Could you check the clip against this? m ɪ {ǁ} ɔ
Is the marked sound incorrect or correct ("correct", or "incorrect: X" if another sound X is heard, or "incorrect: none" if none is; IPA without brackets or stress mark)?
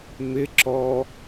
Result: correct